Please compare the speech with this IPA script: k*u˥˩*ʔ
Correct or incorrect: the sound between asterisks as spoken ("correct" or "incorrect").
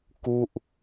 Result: correct